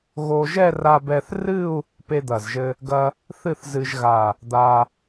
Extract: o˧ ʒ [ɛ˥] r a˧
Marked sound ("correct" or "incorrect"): incorrect